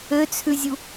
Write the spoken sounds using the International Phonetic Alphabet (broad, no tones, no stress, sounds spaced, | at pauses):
ø t͡sʰ ʉ zʲ u